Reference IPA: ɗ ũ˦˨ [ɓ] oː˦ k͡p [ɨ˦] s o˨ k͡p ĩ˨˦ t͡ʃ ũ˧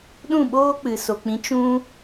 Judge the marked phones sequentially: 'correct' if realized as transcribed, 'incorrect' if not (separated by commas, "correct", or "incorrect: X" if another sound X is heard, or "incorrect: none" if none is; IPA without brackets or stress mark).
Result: correct, incorrect: ɨ˨